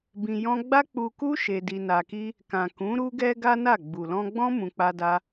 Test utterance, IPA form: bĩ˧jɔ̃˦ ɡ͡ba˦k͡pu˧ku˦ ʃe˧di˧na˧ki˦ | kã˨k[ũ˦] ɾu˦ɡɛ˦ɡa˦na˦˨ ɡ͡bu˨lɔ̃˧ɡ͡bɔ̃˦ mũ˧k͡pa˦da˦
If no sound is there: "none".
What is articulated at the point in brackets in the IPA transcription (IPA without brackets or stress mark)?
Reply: ũ˨˦